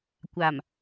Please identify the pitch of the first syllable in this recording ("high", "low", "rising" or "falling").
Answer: low